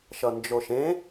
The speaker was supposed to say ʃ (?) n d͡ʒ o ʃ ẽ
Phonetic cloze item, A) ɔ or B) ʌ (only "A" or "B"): B